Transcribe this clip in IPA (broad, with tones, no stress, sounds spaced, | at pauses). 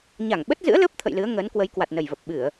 ɲ a˧˩ ŋ ɓ ə˦˥ t̚ z ɨ̰˧˥ ə̯ l ə˦˥ p̚ t̪ʰ ə̰˧˨ j l ɨ˨˦ ə̯ ŋ əː˨˦ n k w ə˨˦ j k w a˨˩ t̚ n ə˨˩ j v ə˨˩ p̚ ɓ ɨ˧˩˨ ə̯